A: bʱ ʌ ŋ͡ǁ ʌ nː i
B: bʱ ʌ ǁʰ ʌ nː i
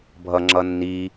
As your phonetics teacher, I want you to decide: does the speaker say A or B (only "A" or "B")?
A